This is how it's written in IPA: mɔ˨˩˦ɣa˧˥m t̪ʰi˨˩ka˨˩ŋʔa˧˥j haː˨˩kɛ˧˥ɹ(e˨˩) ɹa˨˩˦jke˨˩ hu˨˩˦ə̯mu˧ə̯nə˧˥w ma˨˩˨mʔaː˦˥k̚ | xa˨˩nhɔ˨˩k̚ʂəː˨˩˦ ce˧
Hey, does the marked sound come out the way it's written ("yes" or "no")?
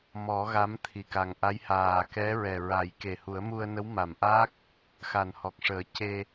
no